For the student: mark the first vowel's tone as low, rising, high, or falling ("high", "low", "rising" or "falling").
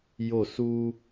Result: falling